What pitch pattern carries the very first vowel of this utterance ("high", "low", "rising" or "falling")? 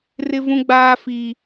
high